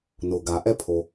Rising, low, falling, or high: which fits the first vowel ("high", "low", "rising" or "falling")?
low